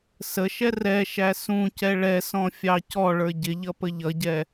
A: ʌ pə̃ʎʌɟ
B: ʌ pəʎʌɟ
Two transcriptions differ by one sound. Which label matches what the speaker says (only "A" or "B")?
B